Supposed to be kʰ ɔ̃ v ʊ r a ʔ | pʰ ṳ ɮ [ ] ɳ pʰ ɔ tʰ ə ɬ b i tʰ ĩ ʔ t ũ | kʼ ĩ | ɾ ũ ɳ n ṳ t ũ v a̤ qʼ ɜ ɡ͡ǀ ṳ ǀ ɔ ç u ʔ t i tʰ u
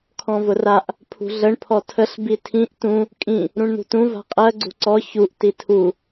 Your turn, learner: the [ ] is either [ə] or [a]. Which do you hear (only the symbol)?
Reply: ə